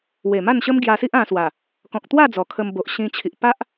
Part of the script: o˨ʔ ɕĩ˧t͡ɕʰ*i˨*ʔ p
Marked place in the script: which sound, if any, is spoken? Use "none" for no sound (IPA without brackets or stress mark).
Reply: i˨